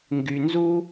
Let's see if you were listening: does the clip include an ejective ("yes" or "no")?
no